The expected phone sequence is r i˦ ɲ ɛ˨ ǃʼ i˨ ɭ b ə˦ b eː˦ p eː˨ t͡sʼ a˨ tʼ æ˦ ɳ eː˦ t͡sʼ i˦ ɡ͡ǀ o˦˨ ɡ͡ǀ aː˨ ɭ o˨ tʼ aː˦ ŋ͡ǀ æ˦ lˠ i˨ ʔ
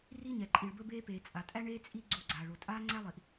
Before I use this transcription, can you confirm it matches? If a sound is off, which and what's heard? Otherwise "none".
none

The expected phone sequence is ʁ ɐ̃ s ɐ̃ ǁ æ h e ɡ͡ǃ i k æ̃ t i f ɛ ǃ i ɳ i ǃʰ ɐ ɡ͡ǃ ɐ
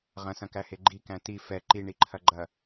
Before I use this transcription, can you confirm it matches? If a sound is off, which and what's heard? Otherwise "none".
ǁ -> k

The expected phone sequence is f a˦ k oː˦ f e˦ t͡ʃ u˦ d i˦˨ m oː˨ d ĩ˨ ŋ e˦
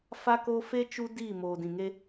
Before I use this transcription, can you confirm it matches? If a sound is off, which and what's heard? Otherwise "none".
none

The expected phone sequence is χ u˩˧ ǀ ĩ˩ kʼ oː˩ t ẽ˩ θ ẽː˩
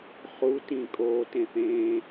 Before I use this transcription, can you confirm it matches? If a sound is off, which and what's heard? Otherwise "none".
ǀ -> t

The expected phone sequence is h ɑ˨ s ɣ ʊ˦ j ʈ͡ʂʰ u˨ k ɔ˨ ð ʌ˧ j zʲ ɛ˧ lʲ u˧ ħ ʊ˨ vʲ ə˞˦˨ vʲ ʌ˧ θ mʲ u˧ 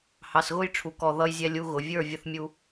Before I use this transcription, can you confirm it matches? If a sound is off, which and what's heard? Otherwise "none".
ħ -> ɣ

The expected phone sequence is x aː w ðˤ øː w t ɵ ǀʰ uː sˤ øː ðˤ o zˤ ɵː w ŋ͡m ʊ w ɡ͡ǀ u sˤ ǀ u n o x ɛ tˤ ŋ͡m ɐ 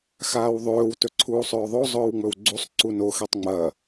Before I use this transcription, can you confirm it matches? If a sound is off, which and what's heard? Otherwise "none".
ʊ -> ɵ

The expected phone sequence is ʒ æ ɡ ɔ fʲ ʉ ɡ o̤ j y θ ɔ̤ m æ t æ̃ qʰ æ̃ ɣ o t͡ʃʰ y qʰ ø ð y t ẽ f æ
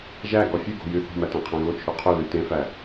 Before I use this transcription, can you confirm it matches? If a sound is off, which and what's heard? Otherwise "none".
none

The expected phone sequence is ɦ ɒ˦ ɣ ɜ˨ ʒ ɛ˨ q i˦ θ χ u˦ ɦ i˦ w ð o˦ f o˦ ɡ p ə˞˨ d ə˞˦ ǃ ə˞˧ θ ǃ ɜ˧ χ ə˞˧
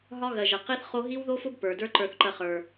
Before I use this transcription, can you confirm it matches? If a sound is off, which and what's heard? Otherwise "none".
u˦ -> o˦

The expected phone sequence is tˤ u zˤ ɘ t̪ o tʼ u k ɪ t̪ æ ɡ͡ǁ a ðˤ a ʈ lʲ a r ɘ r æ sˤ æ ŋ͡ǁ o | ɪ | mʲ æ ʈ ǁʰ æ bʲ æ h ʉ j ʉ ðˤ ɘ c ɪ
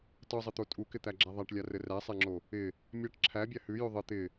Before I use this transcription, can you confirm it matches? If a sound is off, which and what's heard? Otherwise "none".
c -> t̪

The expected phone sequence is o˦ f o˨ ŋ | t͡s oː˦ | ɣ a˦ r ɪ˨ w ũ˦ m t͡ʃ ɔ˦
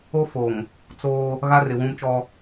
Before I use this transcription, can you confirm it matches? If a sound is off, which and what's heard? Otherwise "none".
none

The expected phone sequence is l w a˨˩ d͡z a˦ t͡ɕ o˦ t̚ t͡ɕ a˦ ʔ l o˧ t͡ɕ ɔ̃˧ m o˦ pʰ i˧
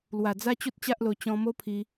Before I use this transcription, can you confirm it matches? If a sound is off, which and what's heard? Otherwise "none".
none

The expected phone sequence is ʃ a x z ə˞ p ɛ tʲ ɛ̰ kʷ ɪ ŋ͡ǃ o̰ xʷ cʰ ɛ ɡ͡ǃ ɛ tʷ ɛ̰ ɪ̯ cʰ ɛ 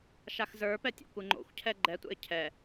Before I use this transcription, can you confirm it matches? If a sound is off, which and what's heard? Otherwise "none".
none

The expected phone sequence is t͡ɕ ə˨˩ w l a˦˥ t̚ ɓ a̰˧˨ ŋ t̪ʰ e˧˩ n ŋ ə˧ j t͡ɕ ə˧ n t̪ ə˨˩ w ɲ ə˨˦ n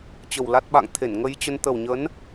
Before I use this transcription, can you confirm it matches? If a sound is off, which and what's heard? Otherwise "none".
none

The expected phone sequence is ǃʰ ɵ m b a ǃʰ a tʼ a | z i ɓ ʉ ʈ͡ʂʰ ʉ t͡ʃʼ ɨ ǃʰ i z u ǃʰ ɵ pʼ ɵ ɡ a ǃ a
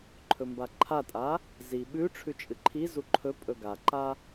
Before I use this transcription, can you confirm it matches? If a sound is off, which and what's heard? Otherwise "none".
none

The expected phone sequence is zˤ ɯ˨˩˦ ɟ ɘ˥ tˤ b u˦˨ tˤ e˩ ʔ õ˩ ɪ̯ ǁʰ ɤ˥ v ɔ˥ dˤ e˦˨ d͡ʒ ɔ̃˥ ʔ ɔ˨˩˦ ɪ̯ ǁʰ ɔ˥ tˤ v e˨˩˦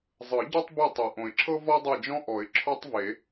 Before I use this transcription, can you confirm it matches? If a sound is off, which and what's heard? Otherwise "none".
ɘ˥ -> ɛ˥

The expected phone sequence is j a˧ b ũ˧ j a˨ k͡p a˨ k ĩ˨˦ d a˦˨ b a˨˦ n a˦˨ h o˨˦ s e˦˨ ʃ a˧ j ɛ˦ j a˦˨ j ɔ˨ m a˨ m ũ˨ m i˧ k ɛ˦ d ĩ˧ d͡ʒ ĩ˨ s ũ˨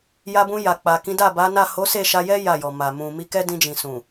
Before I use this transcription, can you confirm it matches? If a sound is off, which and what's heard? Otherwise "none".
none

